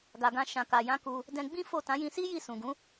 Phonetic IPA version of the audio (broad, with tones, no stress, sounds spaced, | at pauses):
ɡ a˨ ɡ ã˧ ʃ ã˨ k a˨ j ã˧ k u˧ | d ɛ̃˧ ɡ͡b ĩ˦ f o˦˨ t ã˨˦ j ĩ˧ s i˦ j i˦˨ s ũ˨ ɡ ũ˨˦